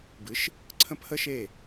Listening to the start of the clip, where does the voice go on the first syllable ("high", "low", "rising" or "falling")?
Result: rising